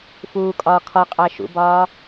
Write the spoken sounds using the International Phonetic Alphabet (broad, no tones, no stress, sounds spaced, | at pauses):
f uː kʼ ɒː kʰ ɒ qʼ æ ʃ ṵ b ɒː